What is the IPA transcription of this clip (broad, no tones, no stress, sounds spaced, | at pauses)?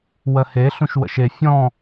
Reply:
w ɜ h e ɬ ũ ʃ w ə̰ ʃ e fʲ ɔ̃